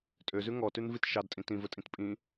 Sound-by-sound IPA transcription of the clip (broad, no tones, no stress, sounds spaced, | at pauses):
tʼ ø z ʉ ŋ ɔ t ʉ n v i t ʃ ɑ d tʼ ĩ t ĩ v ɵ tʼ ĩ t pʼ ĩ